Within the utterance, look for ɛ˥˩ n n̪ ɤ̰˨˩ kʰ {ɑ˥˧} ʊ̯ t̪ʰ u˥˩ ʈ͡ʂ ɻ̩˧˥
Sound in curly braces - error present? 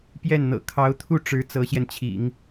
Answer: yes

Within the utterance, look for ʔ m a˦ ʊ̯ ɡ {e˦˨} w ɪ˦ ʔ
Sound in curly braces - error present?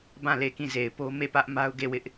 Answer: no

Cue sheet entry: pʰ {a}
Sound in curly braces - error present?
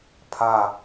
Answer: no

